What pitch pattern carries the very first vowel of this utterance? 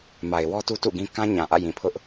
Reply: low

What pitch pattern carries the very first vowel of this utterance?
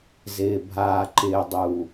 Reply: low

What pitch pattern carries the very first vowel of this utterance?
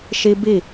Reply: high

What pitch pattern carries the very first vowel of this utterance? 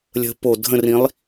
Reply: rising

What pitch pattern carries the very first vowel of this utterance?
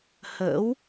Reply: rising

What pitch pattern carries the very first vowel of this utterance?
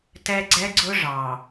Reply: high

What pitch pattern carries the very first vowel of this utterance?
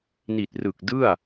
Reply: low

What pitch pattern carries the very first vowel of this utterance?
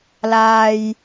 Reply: low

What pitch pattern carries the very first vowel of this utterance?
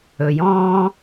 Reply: low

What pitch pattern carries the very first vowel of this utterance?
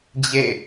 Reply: falling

